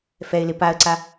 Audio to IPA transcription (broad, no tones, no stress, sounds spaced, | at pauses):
f ɛ ɪ̯ l ɪ p a ə̯ ǀ a